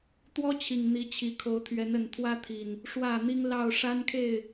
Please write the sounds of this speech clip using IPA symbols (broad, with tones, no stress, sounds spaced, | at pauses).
t̪ w ɔ˦ t͡ɕʰ i˨˩ ŋ n̪ i˨˦ t͡ɕʰ i˨˩ kʰ o˨˦ ʊ̯ t̪ʰ ɥ ɛ˨˦ n ə˨˩ n t̪ʰ w ä˦ t̪ʰ i˨˩ n | ʂ w ä˥˨ n̪ i˦ ŋ l ɑ˥˨ ʊ̯ ʂ a˦ n kʰ e˥˨ ɪ̯